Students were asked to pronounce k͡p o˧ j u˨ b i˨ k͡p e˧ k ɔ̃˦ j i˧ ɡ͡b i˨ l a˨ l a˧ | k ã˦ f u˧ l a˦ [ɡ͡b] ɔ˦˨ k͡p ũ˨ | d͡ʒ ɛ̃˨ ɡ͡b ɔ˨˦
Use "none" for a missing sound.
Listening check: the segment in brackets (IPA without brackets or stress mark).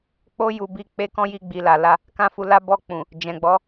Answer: b